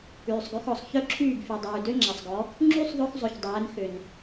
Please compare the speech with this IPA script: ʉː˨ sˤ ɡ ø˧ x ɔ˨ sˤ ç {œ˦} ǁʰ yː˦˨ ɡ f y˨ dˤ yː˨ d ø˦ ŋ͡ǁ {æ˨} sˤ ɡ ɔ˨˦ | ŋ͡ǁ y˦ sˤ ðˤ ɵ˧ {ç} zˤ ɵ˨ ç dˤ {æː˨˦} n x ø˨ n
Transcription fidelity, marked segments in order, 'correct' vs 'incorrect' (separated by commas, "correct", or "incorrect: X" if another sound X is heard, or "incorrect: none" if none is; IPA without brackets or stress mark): correct, correct, incorrect: x, correct